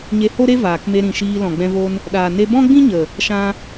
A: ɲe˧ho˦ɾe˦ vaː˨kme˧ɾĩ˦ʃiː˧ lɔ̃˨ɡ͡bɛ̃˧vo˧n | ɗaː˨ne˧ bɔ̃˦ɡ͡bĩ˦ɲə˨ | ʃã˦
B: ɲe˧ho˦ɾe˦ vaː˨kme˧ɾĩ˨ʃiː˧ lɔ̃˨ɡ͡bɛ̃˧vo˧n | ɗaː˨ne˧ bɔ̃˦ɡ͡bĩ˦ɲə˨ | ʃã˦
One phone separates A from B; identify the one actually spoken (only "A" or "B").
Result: B